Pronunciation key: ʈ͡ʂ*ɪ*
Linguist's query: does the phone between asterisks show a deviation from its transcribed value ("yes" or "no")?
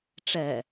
yes